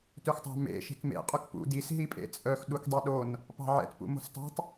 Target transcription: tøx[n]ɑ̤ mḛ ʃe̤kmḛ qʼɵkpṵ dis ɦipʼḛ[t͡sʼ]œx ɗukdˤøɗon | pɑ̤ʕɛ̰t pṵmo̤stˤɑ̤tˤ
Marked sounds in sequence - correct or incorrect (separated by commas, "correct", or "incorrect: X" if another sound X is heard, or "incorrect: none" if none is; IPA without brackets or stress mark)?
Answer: incorrect: tˤ, correct